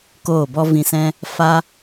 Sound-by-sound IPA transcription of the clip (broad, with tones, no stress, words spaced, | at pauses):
koː˦˨bɔ˦ vĩ˧sɛ̃˦ | fa˦